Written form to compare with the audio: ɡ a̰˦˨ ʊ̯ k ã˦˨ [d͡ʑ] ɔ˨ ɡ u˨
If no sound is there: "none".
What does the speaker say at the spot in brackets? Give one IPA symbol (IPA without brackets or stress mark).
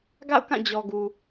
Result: d͡ʑ